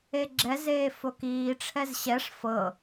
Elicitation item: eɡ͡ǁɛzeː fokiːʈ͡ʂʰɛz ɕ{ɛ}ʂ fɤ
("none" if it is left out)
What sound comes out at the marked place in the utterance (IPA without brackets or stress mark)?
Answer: ɛ